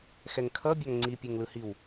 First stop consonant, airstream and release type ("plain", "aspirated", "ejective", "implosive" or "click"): aspirated